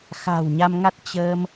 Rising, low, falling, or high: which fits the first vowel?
low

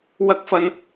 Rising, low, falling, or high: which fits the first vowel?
rising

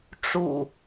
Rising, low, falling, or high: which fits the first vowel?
low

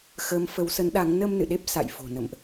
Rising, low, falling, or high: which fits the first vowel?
rising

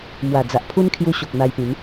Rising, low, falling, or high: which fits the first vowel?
low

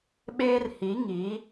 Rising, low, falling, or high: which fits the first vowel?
high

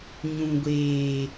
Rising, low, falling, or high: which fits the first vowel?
low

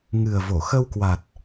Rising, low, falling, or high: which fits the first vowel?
low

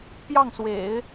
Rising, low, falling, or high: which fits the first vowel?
falling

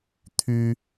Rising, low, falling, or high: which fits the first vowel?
high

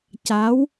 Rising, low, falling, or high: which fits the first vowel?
rising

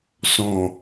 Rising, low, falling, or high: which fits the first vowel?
low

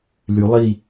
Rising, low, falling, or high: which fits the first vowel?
rising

